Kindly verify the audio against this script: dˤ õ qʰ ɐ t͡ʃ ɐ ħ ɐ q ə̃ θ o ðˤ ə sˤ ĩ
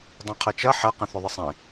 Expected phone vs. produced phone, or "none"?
none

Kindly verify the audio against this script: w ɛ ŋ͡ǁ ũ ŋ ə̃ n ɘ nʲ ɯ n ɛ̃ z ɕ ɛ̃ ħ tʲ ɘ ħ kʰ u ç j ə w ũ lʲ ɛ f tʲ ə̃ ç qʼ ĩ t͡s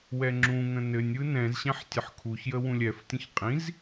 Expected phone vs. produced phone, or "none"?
t͡s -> z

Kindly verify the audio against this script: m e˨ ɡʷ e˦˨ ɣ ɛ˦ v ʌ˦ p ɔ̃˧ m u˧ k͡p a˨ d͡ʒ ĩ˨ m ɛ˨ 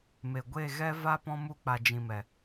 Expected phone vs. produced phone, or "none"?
ʌ˦ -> a˦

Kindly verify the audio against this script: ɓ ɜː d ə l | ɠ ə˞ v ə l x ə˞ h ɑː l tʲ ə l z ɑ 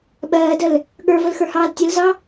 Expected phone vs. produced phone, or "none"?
none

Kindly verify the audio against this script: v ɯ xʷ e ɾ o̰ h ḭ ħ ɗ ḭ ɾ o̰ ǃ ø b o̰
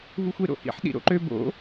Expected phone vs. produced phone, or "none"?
none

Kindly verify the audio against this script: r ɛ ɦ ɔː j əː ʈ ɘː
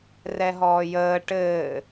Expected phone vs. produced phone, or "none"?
none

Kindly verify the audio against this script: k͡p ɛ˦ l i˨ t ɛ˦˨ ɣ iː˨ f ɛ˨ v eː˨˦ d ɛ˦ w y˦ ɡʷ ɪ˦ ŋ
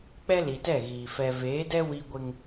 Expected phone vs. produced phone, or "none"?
y˦ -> i˦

